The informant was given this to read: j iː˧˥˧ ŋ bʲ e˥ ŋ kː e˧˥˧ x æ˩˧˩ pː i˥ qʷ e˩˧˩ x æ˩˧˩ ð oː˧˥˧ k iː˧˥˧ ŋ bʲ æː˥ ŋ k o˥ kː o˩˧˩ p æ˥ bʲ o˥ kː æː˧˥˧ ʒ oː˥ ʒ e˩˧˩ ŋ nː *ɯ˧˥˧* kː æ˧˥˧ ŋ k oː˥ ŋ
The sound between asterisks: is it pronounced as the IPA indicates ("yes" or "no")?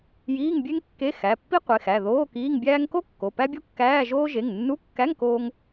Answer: no